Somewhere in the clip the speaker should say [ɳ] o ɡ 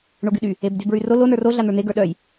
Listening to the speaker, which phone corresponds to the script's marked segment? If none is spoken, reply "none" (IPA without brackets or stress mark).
ɳ